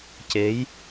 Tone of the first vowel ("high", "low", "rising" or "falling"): rising